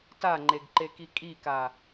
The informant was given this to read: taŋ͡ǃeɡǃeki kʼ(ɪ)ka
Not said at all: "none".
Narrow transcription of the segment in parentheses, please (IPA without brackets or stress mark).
i